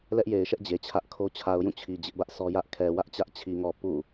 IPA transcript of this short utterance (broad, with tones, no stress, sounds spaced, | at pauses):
l ɛ˦ ʔ j e˨ ɪ̯ ʃ ɛ˦ ʔ d͡ʑ e˨ t͡ɕʰ ä˦ ʔ kʰ o˦ t͡ɕʰ a˨ ʊ̯ j ũ˦˨ t͡ɕʰ i˨ d͡ʑ ɪ˦ ʔ b ä˦ ʔ s ɔ˦ j ä˦ ʔ kʰ ɛ˨ w ä˦ ʔ t͡ɕ ä˦ ʔ t͡ɕʰ i˨ ŋ ɔ˨ p ṵ˦˨